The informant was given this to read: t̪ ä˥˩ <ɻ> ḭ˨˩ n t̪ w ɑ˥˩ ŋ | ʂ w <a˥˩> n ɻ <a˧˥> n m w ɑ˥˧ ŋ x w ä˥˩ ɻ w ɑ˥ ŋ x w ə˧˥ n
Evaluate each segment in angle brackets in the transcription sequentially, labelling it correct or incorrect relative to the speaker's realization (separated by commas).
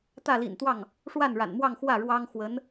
incorrect, correct, incorrect